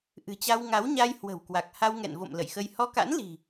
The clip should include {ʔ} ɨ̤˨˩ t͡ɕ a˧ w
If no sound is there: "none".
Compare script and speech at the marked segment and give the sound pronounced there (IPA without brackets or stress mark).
ʔ